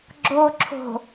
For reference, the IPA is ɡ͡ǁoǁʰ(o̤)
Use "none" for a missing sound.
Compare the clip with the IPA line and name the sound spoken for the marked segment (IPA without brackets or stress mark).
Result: o̤